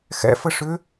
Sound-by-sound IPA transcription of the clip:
x ɛ̰ f ə ʂ ʏ

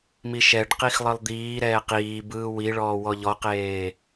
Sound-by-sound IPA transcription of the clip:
m i ʃ ɛ ɖ q i x lˠ ɯ lˠ d̪ iː ɾ ɛː q iː b ɯː w i ɭ ɔː w ɔ ʎ ɔ q eː

